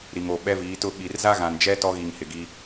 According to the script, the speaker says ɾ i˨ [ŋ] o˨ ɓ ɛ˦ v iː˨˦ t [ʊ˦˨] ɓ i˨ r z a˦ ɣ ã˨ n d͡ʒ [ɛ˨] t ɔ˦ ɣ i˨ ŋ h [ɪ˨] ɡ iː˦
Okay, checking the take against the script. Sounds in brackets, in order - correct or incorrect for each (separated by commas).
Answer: correct, correct, incorrect, correct